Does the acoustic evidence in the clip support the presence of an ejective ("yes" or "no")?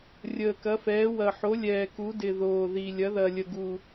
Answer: no